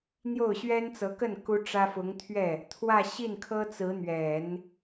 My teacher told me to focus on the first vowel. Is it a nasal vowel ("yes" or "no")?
no